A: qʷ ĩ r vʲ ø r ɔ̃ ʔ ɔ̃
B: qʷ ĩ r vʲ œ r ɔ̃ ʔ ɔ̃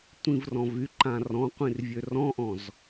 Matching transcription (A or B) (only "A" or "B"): A